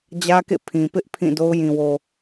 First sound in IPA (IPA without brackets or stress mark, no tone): d͡ʑ